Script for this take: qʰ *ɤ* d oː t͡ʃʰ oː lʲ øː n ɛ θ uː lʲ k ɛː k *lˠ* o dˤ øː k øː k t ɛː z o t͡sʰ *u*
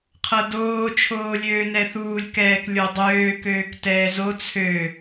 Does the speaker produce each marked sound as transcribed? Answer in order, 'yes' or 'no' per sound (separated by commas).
yes, no, no